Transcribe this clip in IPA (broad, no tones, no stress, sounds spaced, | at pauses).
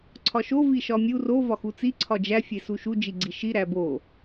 ǀʰ ɒ ʃ o v i ʃ ɒ mʲ u r o v ɒ x u t͡s i ǀʰ ɒ d͡ʒ æ fʲ e s u ʃ u d͡ʒ i ɡ͡ǀ i ʃ i ɾ æ b o